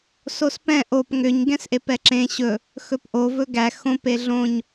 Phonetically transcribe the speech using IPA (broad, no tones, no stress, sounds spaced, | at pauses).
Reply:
s o s p ɛ̃ ʔ o p ŋ ʏ ɲ ɡ ɛ̃ s ʔ e p ɛ ǁ ẽ ɕ ɵ | x ɵ p ʔ o v ɵ ɡ æ x õ p e ɮ õ ɲ